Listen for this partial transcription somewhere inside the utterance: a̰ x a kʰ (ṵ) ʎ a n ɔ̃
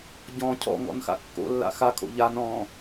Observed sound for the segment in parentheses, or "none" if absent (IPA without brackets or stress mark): o̰